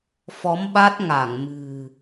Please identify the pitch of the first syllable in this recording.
rising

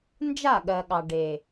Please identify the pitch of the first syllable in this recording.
falling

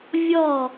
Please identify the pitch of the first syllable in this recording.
falling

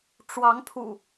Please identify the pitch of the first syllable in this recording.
rising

